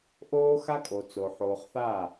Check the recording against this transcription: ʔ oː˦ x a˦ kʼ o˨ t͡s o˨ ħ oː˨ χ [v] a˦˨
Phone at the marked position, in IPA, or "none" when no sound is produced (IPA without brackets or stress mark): θ